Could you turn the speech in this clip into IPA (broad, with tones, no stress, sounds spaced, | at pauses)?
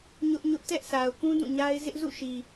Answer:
ɲ ʊ˦ ʔ ɲ ʊ˦ ʔ t ɛ˦ ʔ sʰ a˨ ʊ̯ k ũ˦ d ũ˦˨ ɲ a˦ ɪ̯ z ɪ˦ ʔ z ṵ˦˨ ʃ i˨